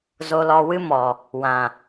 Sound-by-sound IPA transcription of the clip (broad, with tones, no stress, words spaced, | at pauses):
zo˧lɔ˧wɨ˦mɔ˨ | wã˨